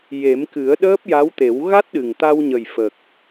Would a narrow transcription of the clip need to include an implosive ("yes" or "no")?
yes